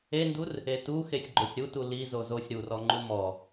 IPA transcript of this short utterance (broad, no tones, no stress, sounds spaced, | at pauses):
e n d u r | e t u x e sʲ ɡ͡ǃ o sʲ ɾ u t u l i z o z o sʲ ɾ u r ɔ ŋ͡ǃ u m ɔ